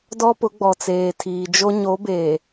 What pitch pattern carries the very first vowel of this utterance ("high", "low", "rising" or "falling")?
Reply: high